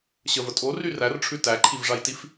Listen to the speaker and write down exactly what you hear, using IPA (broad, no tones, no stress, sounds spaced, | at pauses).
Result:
ɕ ə v ə tʼ o r y r æ r ʈ͡ʂʰ ʉ t æ ǃʰ i v ʐ a j t i f